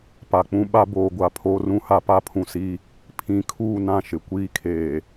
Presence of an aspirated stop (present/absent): present